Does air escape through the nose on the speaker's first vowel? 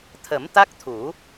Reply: no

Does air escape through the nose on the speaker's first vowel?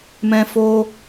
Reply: yes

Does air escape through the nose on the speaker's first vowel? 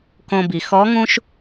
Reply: yes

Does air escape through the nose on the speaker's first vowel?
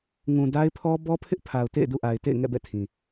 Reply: yes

